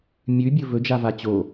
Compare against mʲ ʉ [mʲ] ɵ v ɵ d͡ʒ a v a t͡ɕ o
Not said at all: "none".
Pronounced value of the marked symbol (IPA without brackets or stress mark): bʲ